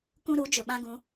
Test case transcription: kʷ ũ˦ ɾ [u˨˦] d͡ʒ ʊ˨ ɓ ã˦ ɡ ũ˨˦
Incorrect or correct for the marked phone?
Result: correct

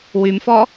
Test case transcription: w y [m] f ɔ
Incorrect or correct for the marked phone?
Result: correct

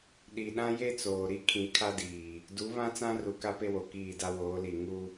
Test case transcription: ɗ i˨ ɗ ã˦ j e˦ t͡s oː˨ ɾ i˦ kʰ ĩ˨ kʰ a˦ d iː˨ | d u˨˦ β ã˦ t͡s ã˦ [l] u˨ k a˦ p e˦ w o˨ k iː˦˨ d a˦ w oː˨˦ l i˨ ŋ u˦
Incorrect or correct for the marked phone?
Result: incorrect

